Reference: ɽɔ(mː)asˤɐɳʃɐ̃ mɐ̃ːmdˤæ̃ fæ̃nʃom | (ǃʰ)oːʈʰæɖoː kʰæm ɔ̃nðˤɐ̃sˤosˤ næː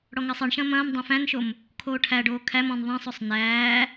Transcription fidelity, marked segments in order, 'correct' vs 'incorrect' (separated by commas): incorrect, incorrect